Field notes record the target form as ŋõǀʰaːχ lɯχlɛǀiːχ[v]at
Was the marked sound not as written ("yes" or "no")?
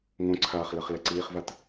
no